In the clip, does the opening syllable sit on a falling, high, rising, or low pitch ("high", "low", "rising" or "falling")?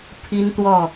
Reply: high